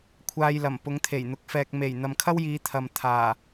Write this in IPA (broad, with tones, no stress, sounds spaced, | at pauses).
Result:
kʷʰ aː˧ j l ɐ˨˩ m p ʊ˨˧ ŋ t̪ʰ e˨˩ j n̪ ʊ˨˥ k̚ f ɛː˨ k̚ m e˨˩ j n̪ ɐ˨ m kʰ ɐ˥ w j iː˨˧ t̪ʰ ɐ˨ m t̪ʰ aː˨˩